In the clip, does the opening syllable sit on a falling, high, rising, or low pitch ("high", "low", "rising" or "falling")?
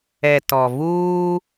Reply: low